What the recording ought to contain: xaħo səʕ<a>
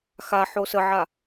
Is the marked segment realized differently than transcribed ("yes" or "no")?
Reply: no